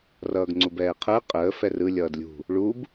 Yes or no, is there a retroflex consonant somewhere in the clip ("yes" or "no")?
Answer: yes